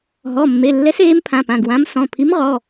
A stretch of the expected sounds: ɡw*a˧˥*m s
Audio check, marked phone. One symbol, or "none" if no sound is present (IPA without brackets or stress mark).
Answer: ã˧˥